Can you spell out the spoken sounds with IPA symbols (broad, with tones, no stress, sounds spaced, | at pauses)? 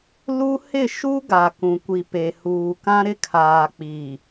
l u˦ h ɪ˦˨ ʃ u˦ ɡ a˨ k ũ˨ kʷ i˨ p e˨ h uː˨ k ã˦ ɾ ɪ˦ kʰ aː˨ k͡p i˨